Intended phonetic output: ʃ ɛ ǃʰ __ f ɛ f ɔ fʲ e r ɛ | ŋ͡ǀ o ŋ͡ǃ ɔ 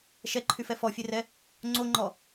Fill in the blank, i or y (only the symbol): y